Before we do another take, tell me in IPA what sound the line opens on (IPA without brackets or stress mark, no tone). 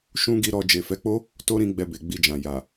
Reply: ʃ